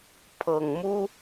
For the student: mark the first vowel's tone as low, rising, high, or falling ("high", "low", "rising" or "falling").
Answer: low